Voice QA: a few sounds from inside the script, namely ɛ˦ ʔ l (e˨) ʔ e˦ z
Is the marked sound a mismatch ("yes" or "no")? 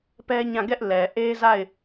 yes